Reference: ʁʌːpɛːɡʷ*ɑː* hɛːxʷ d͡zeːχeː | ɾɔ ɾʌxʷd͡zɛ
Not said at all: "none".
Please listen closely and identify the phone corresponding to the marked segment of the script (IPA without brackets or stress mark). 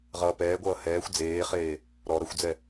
ʌː